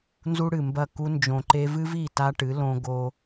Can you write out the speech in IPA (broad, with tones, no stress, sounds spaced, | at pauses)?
n z u˦ ɽ ɨ˨ m b ɐ˦˨ k u˧ n d͡ʒ õ˨ ǃ e˧ v ɨ˦ v i˦˨ t a˦ ʈ ɨ˨˦ l õ˦ ɡ o˦